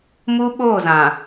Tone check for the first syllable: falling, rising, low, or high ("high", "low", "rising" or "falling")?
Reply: high